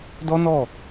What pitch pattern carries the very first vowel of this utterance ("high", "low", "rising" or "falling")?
high